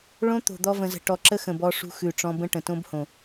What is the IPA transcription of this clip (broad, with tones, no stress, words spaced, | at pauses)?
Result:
ɭõ˦ t̪o̤˨d̪ɔ˧ və̃˨zə̤˨ ʈɔ˨ǁə˦ xə̃˨bɔ˧ʂṳ˧ xʉ˨ʈ͡ʂɔ̃˧ bə̃˦ ʈə̃˨tõ˦b hõ˨